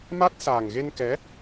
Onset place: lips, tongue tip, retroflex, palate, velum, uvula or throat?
lips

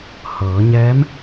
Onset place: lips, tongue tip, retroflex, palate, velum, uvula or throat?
throat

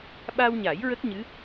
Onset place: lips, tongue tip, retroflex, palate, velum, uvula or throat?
lips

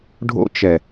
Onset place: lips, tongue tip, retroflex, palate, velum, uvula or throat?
retroflex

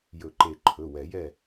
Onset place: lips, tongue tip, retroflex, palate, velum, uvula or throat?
palate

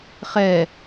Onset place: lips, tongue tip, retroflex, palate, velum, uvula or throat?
uvula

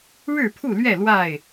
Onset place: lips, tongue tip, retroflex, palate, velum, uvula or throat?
retroflex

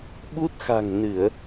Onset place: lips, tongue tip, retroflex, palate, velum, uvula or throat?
lips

